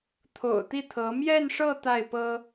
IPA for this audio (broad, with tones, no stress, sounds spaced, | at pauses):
t̪ʰ o̰˨˩ ʊ̯ t̪ i˥˩ t̪ʰ ɤ˧˥ m j ɛ˥˧ n ʂ ɤ˥˧ t̪ a˥˩ ɪ̯ p ɤ˥